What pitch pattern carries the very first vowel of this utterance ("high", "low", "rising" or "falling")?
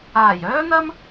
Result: low